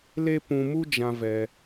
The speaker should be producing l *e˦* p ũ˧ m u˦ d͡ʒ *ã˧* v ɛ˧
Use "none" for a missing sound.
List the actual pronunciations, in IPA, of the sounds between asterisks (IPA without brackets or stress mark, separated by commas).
e˦, ã˧